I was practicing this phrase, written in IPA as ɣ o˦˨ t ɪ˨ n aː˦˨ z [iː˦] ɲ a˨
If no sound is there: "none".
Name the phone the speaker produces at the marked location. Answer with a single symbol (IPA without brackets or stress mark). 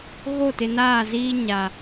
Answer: iː˦